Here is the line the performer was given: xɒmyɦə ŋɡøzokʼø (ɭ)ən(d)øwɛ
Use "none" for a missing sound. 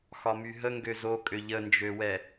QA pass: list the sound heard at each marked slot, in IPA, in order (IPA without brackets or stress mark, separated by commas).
ʎ, d͡ʒ